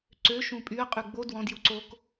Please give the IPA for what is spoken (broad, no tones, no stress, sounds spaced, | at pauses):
ǀ ø ʃ ũ pʼ y ə̯ qʼ ʉ ɡ͡b o d w ɔ̃ d j u ǀ o k